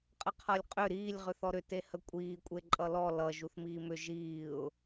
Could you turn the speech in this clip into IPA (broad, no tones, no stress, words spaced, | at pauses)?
qʼəqʰʌlʲqʼʏ ɾiːlʲ ʁʏθɔɾʏ tehəkʷʼiː kʷʼeǃʼʌlɔ lʌ ʒuθmiːmʏ ʒiːʊ̯